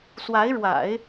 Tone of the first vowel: rising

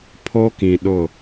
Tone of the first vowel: high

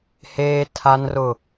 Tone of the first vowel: high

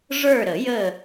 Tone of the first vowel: falling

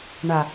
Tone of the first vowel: low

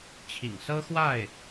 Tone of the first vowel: low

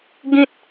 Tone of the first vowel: high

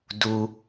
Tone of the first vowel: low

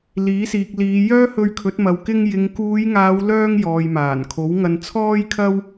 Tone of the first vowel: rising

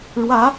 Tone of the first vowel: rising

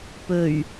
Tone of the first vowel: low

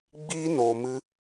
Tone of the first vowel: high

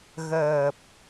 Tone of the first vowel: low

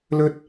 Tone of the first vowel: high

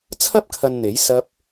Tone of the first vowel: high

